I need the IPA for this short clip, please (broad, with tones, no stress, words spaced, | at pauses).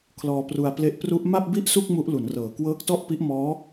kʰlɔː˧pru˧a̯ple˦˥ʔ pru˦˥ʔ ma˥˩p̚bi˥˩ʔsu˥˩k̚ mu˦˥ʔlu˩˦n rɤː˩˦kwɤː˦˥k̚tɔ˥˩ʔ pi˦˥ʔmɔː˦˥